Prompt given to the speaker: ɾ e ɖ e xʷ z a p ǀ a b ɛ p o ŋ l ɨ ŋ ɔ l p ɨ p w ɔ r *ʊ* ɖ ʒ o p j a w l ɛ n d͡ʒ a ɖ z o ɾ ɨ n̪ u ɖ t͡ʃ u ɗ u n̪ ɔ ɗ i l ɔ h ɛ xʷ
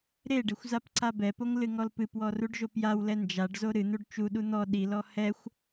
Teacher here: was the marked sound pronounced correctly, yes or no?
no